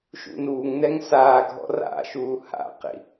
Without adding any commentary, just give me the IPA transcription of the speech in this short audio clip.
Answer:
ʃ ṵ n uː ŋ n ɛ ŋ s aː ɡʱ ɔ̰ r a̰ ʃ uː h a̰ q ḭ

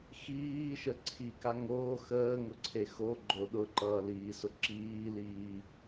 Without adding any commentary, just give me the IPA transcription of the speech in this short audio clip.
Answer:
x iː ʃ ə ǀʰ i k a ŋ oː x əː ŋ ʊ ǀʰ e x o ɡ͡ǃ o ɗ ʊ ǃ ʌː l iː s ʊ ǁ iː l iː

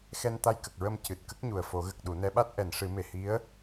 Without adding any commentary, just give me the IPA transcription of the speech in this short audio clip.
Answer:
x ɛ˧ n t̪ a˧ j k ə˨˩ k̚ ɹ ə˧ m c ɨ˨˩ t̚ k ə˦˥ k̚ ɲ u˨˩ ə̯ f o˨˩˦ ɣ ə˨˩ k̚ ɗ u˨˩˦ n ɛ˧˥ ɓ a˦˥ t̚ ʔ ɛ˨˩˨ n ʂ ɨ˨˩˦ m e˨˩ h i˧˥ ə̯

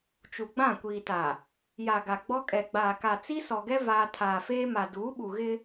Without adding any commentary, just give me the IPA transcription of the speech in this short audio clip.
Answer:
t͡ʃ u˨ ɡ͡b ã˦˨ kʷ iː˨ t a˨ | j a˨ ɡ a˨ ɡ͡b ɔ˦ kʼ ɛ˨ ɡ͡b aː˨ k a˨ t͡s i˦ s ɔ˨ ɡ ɛ˦ v aː˦ tʰ aː˨ f eː˦ m a˨ d uː˨˦ ɓ u˨ ɣ ɪ˦

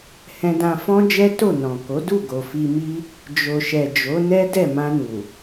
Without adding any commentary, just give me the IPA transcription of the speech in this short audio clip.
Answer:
h ɛ̃˧ d ã˧ f ɔ̃˦ d͡ʒ ɛ˦ t o˦˨ n ɔ̃˨ k o˨˦ d u˦˨ ɡ o˨ f i˧ m i˦ | d͡ʒ o˨ ʃ ɛ˨ d͡ʒ o˨˦ n ɛ˦ d ɛ˦˨ m ã˧ n u˨

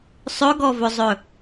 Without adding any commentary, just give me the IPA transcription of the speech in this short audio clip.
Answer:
sˤ ɵ ɡ ɔ v ɵ zˤ ɵ

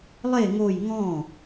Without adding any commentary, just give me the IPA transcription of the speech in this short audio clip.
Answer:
lˠ e ŋ o j ŋ ɔ̃

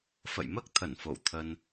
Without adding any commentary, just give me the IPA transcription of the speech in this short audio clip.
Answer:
f ə̰˧˨ j m əː˦˥ k̚ t̪ʰ ə˧˩ n f o̰˧˨ w t̪ʰ ə˧ n

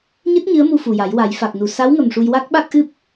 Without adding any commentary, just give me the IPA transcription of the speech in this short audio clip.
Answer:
ɲ ɨ˦˥ t̚ ɲ ɨ˧˥ ə̯ m u˧ f u˨˩ j a˨˩˦ j w a˨˩˦ j f a˨˩ k̚ n u˨˩ s a˧˥ w ŋ ə˨˩ m ʂ u˧ j w a˦˥ k̚ ɓ a˦˥ k̚ ʔ ɨ˦˥ p̚

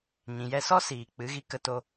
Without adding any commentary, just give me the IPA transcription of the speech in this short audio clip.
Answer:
ɲ ĩ˨ j ɛ˧ s ɔ˦ s iː˨ k͡p ɨ˨˦ ɣ i˦ k ə˧ t o˧

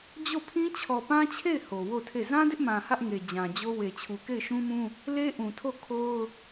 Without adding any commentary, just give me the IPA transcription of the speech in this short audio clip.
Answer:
d͡ʑ o˦˨ pʰ ĩ˦ t͡ɕʰ ɔ˨ p ã˦ t͡ɕʰ e˦˨ ɪ̯ h o˨ w o˦˨ tʰ e˦˨ z ã˦ d ɪ˦ ʔ m ã˨ h ä˦ ʔ ŋ e˨ d͡ʑ ã˨ d͡ʑ o˦ w e˨ t͡ɕʰ u˨ k e˦˨ ɪ̯ ʃ ũ˦ m ũ˦ | l e˦ ʔ ũ˨ tʰ o˦˨ kʰ o˦ ʊ̯

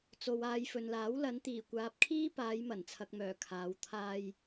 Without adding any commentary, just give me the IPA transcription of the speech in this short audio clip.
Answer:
t͡s o˨ w aː˧ j f ɵ˨ n l aː˨˥ w l ɐ˨˧ n t̪ iː˨˩ kʷ aː˨ p̚ kʰ iː˥ p aː˨˧ j m ɐ˨˩ n t͡sʰ ɐ˨ k̚ m œː˨˩ kʰ aː˨˧ w t̪ʰ aː˧ j

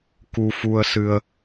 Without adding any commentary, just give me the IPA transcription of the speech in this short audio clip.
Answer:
k u˧ f u˧ ə̯ s ɨ˧ ə̯

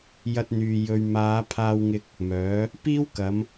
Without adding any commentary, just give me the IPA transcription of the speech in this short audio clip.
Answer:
j ɐ˧ t̚ n̪ yː˨ j ɵ˨ ɥ m aː˨˧ pʰ aː˧ w ŋ ɪ˧ k̚ | m œː˨˥ | p iː˥ w k ɐ˨˧ m

